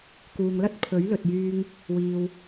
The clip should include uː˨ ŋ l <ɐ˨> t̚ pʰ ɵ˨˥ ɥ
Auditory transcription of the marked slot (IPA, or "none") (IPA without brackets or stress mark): ɐ˥